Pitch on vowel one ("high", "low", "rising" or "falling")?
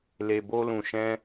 low